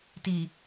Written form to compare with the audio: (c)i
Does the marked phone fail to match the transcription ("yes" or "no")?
yes